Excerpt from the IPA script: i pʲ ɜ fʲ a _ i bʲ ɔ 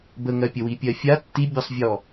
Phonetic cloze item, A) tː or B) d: A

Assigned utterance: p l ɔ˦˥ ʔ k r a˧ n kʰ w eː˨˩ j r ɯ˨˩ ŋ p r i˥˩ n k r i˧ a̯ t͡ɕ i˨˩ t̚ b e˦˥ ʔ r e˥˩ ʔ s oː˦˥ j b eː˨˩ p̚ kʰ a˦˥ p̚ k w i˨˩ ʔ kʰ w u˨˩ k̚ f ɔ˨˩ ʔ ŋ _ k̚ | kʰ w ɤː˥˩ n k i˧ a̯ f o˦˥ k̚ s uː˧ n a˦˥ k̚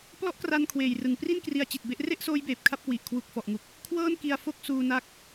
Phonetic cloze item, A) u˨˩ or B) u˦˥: A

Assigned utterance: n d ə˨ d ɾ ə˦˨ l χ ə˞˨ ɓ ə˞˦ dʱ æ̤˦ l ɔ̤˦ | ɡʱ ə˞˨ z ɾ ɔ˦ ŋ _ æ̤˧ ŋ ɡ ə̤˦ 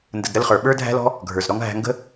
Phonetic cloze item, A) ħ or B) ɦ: B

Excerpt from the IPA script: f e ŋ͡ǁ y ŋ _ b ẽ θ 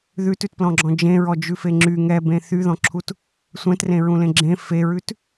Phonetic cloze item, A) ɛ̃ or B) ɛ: B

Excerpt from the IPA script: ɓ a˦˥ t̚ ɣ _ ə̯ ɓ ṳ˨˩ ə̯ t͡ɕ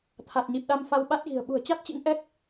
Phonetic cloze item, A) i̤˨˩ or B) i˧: A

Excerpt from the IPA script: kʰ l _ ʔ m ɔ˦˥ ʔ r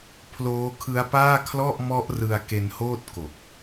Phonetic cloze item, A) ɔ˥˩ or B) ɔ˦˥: A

